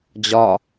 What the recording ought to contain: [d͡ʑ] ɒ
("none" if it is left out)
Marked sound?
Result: d͡ʑ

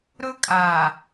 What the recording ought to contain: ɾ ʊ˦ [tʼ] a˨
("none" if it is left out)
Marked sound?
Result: kʼ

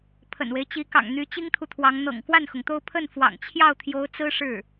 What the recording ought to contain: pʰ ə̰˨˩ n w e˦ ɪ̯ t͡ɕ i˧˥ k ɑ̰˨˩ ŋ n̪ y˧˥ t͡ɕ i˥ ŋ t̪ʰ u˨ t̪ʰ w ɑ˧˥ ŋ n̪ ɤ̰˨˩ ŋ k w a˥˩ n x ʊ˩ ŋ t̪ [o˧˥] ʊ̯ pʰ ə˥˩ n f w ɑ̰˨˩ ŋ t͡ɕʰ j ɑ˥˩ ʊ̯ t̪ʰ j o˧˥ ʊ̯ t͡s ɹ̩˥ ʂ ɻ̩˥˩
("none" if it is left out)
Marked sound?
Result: o˥˧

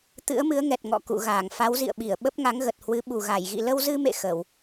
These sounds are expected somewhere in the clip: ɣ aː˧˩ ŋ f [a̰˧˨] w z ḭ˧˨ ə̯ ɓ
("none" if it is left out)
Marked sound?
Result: a˨˦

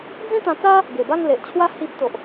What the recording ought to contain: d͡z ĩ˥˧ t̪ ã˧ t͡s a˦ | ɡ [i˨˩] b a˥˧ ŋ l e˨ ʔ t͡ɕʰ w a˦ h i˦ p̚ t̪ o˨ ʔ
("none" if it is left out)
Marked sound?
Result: e˨˩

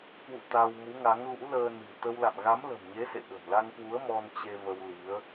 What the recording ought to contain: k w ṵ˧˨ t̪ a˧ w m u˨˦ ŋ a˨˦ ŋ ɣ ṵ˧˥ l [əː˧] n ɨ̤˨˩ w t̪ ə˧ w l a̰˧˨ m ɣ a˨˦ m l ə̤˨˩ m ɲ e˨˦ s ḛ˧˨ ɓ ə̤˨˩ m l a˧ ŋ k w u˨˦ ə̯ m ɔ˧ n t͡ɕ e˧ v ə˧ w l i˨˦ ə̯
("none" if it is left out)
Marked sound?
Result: əː˧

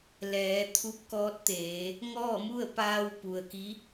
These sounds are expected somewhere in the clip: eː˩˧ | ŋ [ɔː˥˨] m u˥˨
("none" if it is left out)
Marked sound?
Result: ɔː˥˨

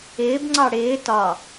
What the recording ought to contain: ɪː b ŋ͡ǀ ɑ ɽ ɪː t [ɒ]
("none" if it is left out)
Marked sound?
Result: ɒ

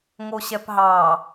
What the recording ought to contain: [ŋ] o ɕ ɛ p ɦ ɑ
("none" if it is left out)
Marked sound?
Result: ŋ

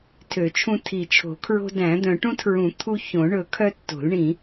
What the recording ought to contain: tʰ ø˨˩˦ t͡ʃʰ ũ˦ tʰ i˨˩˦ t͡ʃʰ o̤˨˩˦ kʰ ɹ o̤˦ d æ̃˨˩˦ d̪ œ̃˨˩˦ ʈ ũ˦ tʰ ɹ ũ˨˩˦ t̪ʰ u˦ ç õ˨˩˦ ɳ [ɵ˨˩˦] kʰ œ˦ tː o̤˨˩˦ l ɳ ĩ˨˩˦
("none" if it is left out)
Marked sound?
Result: ɵ˨˩˦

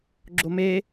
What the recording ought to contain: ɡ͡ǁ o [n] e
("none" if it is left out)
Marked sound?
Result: m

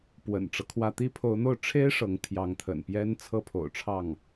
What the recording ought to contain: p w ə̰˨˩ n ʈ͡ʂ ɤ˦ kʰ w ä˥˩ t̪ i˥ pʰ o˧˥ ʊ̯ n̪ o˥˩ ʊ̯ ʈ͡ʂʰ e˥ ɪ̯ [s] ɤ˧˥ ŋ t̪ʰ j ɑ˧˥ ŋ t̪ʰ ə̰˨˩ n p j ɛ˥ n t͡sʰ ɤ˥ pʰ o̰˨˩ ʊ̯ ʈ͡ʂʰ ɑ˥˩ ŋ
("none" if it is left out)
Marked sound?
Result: ʂ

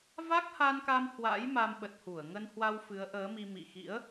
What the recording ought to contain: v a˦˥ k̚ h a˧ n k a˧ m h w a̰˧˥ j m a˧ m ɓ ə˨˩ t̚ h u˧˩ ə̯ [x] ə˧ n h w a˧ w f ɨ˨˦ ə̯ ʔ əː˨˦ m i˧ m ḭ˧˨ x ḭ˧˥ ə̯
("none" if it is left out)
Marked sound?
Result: ŋ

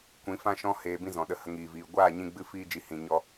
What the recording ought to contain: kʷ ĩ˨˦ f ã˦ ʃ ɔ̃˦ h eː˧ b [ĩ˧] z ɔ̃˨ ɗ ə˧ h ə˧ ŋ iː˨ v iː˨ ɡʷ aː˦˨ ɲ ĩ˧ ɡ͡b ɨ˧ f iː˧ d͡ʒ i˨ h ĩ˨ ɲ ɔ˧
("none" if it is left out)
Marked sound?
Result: ĩ˦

